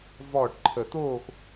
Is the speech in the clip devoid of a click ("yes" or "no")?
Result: no